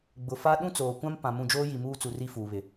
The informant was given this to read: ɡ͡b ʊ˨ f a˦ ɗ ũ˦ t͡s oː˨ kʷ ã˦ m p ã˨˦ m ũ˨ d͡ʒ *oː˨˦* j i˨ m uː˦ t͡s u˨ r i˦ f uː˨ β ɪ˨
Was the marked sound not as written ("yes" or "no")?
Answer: yes